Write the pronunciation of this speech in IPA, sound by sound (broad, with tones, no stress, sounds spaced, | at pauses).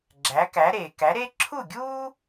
ɡ͡ǁ æ˩˥ k æ˩˥ ɾ e˩ k æ˩˥ ɾ e˥ ǁʰ u˥˩ ɡʲ u˥